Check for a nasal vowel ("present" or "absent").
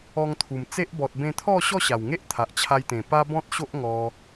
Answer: present